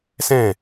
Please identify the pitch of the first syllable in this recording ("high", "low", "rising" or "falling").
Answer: falling